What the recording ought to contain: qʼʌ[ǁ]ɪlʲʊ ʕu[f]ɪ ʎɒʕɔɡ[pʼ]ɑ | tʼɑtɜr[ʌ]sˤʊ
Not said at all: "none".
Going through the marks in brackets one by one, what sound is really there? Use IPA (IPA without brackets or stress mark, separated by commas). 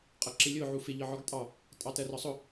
ǁ, f, tʼ, ɒ